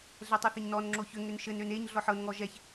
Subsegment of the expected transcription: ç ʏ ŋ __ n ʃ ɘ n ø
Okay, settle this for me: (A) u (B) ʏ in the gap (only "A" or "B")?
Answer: B